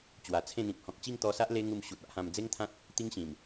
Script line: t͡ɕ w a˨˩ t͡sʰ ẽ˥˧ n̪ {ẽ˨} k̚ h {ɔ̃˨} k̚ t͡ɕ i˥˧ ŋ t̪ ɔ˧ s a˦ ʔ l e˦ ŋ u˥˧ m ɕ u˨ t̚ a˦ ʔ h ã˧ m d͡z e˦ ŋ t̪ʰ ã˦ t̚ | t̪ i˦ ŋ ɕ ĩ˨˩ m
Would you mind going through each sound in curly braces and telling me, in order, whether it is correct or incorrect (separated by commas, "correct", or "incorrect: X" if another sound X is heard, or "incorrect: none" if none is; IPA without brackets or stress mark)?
incorrect: ĩ˨, correct